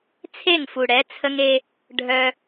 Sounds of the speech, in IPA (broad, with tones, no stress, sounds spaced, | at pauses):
t͡sʰ e˦˨ ŋ f u˨ ɽ ɛ˨˦ t͡sʰ ə˦ ŋ e˦ | ɖʱ œ˧